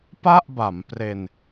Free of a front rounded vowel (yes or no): yes